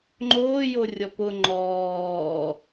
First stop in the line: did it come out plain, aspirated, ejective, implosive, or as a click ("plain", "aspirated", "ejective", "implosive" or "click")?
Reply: click